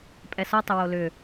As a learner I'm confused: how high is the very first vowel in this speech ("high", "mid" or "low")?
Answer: mid